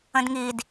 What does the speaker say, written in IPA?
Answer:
ə̃dŋid

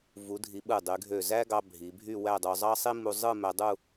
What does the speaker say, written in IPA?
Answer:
vu˩˧dʱi˩˧ ɓɯ˧˩dˤy˩˧ɡʱø˧˩ zæ˥ɡɑ˧ bʱi˩˧bʱy˥˧wæ˥˧dˤu˧ zˤɑ˥sˤi˥ mu˧zˤɯ˥˧ mæ˧dˤu˥˧

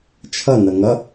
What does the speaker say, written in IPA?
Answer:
t͡ʃʰʌ nʌŋʌ

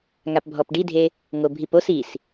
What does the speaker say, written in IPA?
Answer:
ŋapbʱɔpɖidʱe | ŋobʱipos is

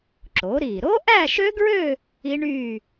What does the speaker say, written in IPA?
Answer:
ǁo˩˥ɾi˧˩ ɾo˦˥ʔæ˥˧ʃø˦˥ɡɹø˥˧ | i˦˥ɳy˥˧

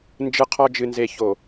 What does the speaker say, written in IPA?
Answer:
nd͡ʒɯ˦qʰɔ˦ d͡ʒɨ˨nze˨ ço˨

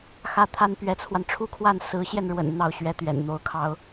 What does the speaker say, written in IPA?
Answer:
xä˥˩t̪ʰa˥n pɥɛ˧˥t͡sʰwa˧nʈ͡ʂʰu˥˧kʰwa˥˩n sɹ̩˧˥ɕjɛ˧nɻwə̰˨˩n n̪ɑ˥˩ʊ̯ɕɥɛ˥ t̪ɥɛ̰˨˩nn̪o˧˥ʊ̯kʰɑ˥ʊ̯

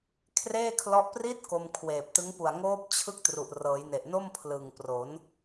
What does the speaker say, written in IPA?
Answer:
kʰreː˥˩kʰlɔ˦˥ʔ pri˦˥t̚ ko˧mkʰweː˨˩p̚tɯ˦˥ŋ pu˨˩a̯ŋoː˦˥p̚t͡ɕʰɯ˦˥k̚ tru˨˩ʔrɤː˩˦jne˨˩ʔno˥˩m pʰlɯ˨˩ŋpro˩˦n

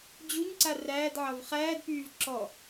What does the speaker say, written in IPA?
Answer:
d͡ʑuɲǀa ræːdʕɑv χæːdpyːv ǁɔ

